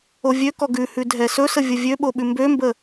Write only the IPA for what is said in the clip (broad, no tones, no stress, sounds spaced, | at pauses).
o vʲ ø k ɔ ɡ ʉ h ʉ dʱ ɛ s ɵ s ə vʲ ə vʲ ø ɓ o ɓ ʉ m b ø m b ə